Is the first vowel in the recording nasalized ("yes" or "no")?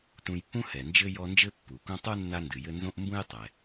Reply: yes